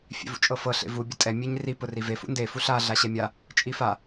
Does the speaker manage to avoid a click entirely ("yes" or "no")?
yes